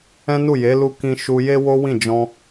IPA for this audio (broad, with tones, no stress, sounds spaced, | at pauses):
ɛ̃˦ n u˦˨ j e˨˦ l u˧ k ĩ˧ ʃ u˧ j e˦ w o˦ w ĩ˦˨ d͡ʒ ɔ̃˧